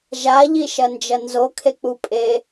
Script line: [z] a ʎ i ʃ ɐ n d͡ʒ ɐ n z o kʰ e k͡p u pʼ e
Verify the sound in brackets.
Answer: incorrect: ʒ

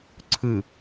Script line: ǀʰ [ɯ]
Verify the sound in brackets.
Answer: correct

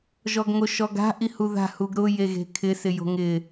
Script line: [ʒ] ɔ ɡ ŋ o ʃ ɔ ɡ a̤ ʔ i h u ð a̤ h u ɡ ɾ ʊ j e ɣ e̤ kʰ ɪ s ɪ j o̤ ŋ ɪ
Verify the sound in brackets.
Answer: correct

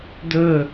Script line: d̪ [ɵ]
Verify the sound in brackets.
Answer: correct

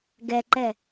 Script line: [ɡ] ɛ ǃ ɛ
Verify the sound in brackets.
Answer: correct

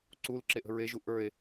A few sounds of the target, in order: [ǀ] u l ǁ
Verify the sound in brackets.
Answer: correct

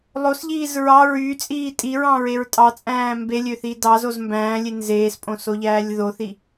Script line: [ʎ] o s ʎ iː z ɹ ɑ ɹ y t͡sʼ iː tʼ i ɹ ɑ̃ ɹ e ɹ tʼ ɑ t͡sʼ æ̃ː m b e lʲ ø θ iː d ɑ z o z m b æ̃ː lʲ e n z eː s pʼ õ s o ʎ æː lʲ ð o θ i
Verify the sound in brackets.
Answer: incorrect: lˠ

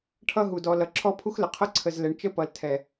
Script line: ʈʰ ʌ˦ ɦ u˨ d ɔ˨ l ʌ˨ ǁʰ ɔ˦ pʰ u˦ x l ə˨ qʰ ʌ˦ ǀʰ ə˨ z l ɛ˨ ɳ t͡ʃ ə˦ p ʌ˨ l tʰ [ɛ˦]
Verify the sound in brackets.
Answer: incorrect: ɛ˨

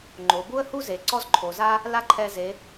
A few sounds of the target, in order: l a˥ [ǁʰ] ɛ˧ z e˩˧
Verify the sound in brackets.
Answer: incorrect: ǃʰ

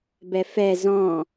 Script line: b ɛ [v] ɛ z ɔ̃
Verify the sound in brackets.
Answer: incorrect: f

